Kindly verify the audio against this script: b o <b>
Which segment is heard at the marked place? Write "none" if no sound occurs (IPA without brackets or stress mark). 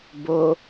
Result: none